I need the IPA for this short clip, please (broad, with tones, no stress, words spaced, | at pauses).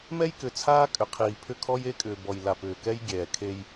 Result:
mɛ˦jkʏ˨t͡sʰaː˦ kʼʏ˨ qʰiː˨pʰʏ˦˨kʰɔ˦j e˦kʼʏː˨bɔ˨j la˨pʏː˨kɛ˦j ɡʲɛː˨kʰe˦j